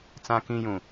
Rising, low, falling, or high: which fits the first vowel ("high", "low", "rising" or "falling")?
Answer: low